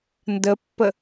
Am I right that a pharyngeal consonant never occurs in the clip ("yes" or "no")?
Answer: yes